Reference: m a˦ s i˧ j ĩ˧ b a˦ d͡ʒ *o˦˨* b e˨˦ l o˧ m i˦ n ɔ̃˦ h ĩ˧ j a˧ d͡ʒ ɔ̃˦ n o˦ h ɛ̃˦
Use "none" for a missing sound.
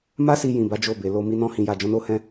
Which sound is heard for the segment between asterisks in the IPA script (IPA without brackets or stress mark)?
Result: o˦˨